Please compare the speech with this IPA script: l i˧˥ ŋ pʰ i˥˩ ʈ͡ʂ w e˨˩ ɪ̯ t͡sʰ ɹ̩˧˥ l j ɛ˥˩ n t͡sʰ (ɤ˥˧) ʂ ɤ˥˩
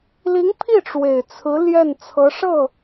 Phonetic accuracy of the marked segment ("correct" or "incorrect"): incorrect